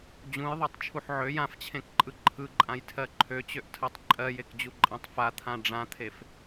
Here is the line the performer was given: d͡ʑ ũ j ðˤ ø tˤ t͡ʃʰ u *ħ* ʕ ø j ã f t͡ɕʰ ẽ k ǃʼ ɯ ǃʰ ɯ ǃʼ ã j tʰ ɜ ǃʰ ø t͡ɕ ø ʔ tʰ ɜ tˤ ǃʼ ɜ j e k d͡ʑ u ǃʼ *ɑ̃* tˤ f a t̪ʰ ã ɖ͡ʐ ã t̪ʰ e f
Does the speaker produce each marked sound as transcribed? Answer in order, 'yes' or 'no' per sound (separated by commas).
yes, no